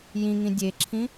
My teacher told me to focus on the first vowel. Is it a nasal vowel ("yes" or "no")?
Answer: yes